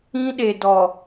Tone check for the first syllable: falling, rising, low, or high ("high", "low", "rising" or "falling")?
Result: high